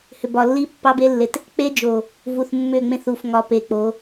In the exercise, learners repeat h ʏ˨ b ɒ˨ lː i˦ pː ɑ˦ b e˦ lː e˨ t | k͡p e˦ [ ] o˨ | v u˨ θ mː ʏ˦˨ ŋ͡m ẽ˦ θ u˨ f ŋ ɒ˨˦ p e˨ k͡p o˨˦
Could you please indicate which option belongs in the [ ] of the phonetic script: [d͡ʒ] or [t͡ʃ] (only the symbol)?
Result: d͡ʒ